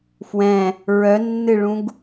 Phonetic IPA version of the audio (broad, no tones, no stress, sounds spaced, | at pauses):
f w ɛ̃ | ɹ œ nː ɨ ɭ ũ ɡ